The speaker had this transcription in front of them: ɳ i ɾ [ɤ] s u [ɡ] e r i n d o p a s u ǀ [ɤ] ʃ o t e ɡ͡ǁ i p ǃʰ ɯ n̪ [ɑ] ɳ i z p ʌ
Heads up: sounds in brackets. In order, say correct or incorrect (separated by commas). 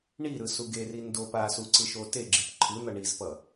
incorrect, correct, incorrect, incorrect